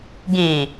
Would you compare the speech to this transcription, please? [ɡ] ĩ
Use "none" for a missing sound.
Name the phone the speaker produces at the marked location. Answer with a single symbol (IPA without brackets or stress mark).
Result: ɡ